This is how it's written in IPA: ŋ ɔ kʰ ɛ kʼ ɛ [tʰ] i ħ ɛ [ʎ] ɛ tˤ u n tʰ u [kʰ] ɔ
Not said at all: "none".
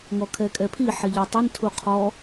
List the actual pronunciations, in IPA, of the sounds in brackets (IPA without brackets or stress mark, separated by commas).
pʰ, ʎ, qʰ